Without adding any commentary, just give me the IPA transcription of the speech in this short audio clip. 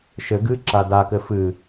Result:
ʃɘ ɡɨ ǁadakɘ fɨ

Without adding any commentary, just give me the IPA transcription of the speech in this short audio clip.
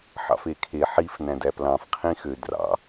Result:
ħɑ̰fekʰe ħif næ̃dæplɑ̃f qʰĩxø drɑ̰

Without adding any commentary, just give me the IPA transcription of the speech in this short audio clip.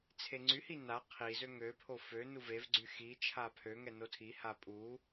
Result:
t͡sʰeŋ͡ǀyhi na qʰizø ŋøpʰo fø nuvevɡ͡ǀy xi t͡ʃʰapʰøŋɛ notʰiha pʼu

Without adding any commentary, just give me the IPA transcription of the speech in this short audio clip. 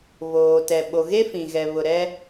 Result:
βoː˨tɛ˨ ɓo˨ɣe˦ fĩ˨ɣɛ˨βʊ˨ ɾɛ˦

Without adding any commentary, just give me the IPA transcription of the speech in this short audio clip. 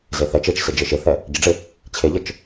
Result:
zeθɛ t͡ʃet͡ʃsɪ d͡ʒeʃeθɛ | ɟɪɖ͡ʐɪ | t͡ɕʰeʎət͡ʃ

